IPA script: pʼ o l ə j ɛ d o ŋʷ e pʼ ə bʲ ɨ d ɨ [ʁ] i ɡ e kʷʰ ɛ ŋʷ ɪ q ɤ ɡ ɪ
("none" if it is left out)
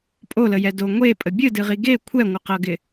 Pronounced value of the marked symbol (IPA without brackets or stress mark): ʁ